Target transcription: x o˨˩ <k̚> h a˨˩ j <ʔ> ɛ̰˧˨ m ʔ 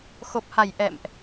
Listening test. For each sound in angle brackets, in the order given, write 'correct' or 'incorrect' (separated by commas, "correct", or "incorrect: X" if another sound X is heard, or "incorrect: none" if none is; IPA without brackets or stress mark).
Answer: incorrect: p̚, correct